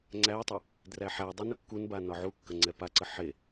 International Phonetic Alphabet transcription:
ŋ͡ǀ æ tˤ i | d r æ ħ æ dˤ e n ʊ kː u n b a n ɒ ʕ u kː ə ŋ͡ǀ ɛ p a ǀ ə ħ e

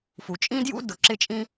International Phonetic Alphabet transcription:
f u˩ t͡ʃʼ ĩ˥ d j ṵ˥ d ʊ˩ ǁ ɪ˥ t͡ʃʼ ĩ˥

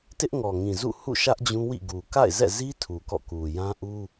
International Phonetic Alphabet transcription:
t ɪ˦ ʔ ŋ ɔ˨ ŋ ĩ˨ z ṵ˦˨ h ṵ˦˨ ʃ ä˦ ʔ d͡ʑ ũ˦ w ḭ˦˨ ɡ u˨ k a̰˦˨ ɪ̯ z ɛ̰˦˨ z i˦ tʰ u˨ k ɔ̰˦˨ k u˨ j ã˦ ʔ u˦

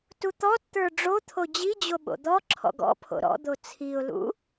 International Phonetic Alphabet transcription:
t u t̪ ɔ t t̪ ə˞ ɖ͡ʐ o t̪ʰ o d͡ʑ i d͡ʑ o ɓ o̰ d̪ ɔ ǁʰ ɔ̰ ɡ ɔ̰ pʰ o̰ ɾ ɔ̰ d̪ o t͡sʰ i ʊ̯ l ṵ

